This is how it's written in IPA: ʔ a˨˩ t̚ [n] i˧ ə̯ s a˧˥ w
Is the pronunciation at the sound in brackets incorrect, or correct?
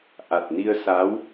correct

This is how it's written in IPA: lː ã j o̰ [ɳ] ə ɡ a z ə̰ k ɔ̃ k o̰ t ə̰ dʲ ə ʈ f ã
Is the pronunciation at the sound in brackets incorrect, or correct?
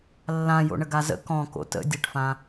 correct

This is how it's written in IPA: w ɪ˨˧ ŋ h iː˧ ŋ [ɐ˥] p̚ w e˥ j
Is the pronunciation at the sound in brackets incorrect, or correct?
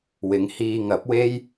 incorrect: ɐ˨˥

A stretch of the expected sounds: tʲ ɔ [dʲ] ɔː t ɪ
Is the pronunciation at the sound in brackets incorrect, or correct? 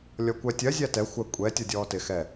correct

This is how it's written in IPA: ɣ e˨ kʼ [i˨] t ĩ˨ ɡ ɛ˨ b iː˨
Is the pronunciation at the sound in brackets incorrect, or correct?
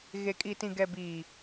correct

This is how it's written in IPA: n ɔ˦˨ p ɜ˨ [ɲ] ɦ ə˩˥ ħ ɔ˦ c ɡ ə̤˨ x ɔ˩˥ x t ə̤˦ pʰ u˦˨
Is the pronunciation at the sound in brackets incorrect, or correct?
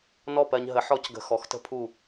correct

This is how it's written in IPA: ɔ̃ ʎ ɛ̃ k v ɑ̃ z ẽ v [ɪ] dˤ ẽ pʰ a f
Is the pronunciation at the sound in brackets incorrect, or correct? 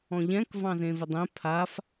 correct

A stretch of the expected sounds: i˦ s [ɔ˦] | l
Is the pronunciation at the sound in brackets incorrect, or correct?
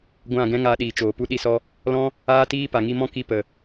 correct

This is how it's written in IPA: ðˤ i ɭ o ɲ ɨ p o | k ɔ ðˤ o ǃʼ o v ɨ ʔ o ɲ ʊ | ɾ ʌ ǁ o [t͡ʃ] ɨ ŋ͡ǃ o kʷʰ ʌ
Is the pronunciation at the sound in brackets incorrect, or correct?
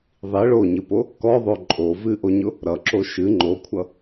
incorrect: ʃ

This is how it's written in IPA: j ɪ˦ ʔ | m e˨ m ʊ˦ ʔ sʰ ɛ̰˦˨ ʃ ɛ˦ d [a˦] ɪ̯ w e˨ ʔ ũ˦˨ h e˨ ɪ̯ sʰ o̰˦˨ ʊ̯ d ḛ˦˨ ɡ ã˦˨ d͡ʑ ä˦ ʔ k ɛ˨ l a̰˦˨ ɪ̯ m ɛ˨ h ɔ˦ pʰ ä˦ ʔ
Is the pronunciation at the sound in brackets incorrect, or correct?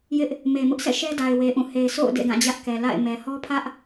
incorrect: a˨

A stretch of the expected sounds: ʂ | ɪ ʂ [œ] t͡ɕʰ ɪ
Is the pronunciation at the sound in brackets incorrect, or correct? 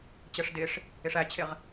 incorrect: æ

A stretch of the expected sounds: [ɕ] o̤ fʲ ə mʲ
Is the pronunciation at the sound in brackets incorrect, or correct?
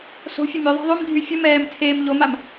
incorrect: s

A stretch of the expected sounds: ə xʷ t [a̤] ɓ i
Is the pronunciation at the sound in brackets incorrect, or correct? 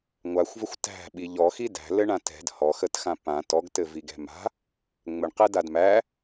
incorrect: æ̤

